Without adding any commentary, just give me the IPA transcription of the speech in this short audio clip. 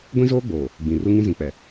ɡʷ ĩ˦ z oː˦ ɡ͡b oː˨ | ɡ͡b ĩ˨ r u˦ ŋ ĩ˦ z ĩ˨ k͡p ɛ˨

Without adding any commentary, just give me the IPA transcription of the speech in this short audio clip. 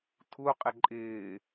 tʰ u qʼ ɪ ǃʼ ɪː

